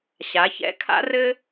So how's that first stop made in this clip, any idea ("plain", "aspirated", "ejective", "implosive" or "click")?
aspirated